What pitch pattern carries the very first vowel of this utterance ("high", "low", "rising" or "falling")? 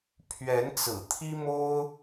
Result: rising